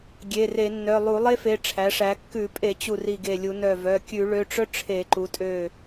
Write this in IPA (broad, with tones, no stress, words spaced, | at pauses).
ɡʲe˩˧˩re˧˩˧nːœ˩˧˩ lˠu˧˩˧lˠe˥fe˩˧˩ ʈ͡ʂʰæ˩˧ʂæ˩˧ kːʉ˧˩˧pʼe˧˩˧ t͡ɕu˧˩ri˧˩ɡe˧˩lʲu˧˩˧ nœ˧˩vœ˩˧˩ kʲʉ˧˩˧ɭø˩˧˩ʈ͡ʂœ˥ ʈ͡ʂʰe˧˩˧ǃu˩˧tʼø˧˩